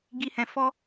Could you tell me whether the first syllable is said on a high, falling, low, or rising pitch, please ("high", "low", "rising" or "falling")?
high